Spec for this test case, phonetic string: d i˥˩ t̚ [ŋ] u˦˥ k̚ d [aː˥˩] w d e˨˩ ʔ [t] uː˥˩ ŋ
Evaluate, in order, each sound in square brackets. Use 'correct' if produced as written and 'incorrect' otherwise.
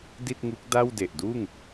correct, incorrect: a˥˩, incorrect: d

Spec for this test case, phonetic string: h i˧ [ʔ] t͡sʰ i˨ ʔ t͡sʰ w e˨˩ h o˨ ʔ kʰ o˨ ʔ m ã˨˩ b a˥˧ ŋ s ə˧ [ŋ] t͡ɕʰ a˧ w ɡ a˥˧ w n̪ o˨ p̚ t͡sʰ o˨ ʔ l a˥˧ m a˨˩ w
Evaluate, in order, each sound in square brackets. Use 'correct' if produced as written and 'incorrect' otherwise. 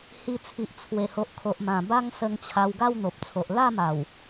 incorrect: none, correct

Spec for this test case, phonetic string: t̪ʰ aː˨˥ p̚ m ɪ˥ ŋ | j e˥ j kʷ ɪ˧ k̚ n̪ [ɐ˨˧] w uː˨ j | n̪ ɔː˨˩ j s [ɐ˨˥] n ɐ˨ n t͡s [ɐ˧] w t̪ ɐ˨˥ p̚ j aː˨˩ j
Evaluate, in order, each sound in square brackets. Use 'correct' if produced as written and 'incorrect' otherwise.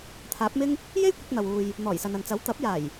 incorrect: ɐ˨, incorrect: ɐ˨, incorrect: ɐ˨˥

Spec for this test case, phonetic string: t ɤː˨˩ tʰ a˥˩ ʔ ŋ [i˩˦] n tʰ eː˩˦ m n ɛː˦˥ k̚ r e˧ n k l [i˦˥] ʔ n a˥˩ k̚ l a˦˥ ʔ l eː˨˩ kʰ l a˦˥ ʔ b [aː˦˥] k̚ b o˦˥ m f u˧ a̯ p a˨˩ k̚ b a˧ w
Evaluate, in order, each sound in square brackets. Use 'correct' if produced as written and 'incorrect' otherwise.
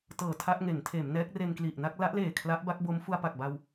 incorrect: e˩˦, incorrect: i˨˩, incorrect: a˦˥

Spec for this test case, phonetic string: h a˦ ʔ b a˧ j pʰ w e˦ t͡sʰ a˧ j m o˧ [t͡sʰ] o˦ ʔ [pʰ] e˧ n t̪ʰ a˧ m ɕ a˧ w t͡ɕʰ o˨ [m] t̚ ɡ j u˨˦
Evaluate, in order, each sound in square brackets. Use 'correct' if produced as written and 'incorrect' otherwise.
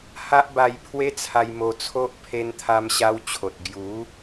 correct, correct, incorrect: none

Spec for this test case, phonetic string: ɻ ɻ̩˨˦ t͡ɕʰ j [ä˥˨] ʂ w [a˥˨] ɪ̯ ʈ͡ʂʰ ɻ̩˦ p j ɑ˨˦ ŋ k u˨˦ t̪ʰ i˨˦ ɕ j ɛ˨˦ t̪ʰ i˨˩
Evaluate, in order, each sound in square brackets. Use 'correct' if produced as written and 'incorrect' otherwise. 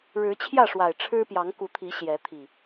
correct, incorrect: a˨˩

